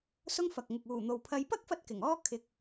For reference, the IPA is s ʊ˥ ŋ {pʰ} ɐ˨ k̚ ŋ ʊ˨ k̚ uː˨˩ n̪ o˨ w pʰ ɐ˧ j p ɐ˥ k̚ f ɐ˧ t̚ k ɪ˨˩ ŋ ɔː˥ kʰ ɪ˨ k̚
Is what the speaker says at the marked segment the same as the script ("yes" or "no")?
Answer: no